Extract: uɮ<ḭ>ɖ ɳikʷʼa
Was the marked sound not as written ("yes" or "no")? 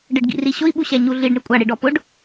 yes